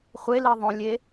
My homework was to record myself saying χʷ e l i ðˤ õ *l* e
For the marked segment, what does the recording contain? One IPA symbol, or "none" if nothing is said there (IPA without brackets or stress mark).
lʲ